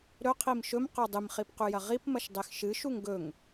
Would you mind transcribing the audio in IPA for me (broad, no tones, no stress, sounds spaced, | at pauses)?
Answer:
ɾ ɵ qʰ i m ʃ ɵ m q o dˤ ɨ m χ i p q ʉ j ɐ ʁ i p m ɐ ʃ dˤ e x ʃ ɨ ʃ u ŋ ɡ ɵ ŋ